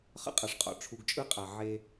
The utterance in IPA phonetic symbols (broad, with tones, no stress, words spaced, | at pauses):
χə̰˦qʼa˨ʂqʼɔ̰˨ ʈ͡ʂʰu˨ɡt͡ʃʼɯ˦˨qʼa˨ ʕe˦